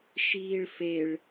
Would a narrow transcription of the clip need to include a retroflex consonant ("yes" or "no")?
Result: yes